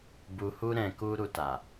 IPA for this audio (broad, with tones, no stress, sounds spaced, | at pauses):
b u˨ h u˧ ɾ ɛ̃˨ k u˧ ɾ u˨ t a˨